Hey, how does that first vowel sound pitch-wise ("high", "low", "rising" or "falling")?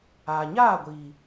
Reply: low